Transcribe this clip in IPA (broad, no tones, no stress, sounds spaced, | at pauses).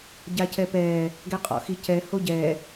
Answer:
ɟ a c ɛ p ɛː | ɡ ɛ qʼ ɔ̰ x i c ɛ h o ɟ ɛː